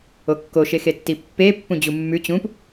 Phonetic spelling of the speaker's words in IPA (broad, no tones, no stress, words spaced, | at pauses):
okːoʃexe tːipːe pːũd͡ʑumːʉ t͡ɕũp